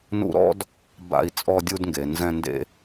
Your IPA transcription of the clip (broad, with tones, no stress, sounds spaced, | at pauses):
n ṵ˧ ɾ ɔ̰˦ d | b a̰˧ i̯ t͡sʼ ɔ˧ dʲ u˧ d ŋ ɡ e˨ n z ɛ̃˧ n d ḛ˦